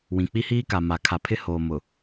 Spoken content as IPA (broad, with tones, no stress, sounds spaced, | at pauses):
w ĩ˨ k͡p i˦ h iː˦ k a˨ m a˨ kʰ a˨ pʰ ɪ˦ h oː˨ m ʊ˨